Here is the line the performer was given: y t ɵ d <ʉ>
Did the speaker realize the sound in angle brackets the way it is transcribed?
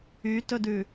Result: yes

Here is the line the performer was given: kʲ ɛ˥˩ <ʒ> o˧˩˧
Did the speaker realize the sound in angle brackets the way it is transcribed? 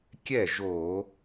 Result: yes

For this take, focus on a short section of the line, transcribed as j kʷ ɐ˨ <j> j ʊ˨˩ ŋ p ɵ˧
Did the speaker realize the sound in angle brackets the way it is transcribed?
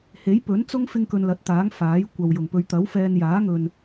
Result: no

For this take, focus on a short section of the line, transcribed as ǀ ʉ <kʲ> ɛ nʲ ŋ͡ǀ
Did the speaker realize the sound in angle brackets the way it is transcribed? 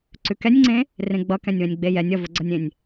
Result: no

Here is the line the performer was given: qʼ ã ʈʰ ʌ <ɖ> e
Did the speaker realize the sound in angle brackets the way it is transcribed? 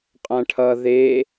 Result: no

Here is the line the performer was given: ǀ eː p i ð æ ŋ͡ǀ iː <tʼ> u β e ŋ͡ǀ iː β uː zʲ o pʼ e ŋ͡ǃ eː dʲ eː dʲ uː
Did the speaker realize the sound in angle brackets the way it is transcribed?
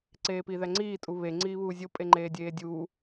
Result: yes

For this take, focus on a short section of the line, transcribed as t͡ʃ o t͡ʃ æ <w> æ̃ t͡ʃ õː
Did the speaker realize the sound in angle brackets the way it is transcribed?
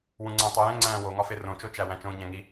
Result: yes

